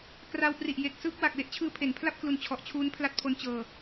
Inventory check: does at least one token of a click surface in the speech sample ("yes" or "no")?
no